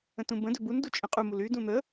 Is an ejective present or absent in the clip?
present